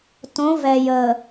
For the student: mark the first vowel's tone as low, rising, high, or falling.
rising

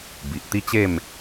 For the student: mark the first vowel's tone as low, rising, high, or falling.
low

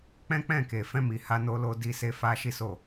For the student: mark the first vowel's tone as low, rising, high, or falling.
high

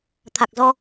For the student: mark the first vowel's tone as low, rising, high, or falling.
low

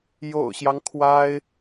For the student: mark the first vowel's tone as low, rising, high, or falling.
low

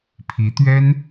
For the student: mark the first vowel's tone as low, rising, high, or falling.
rising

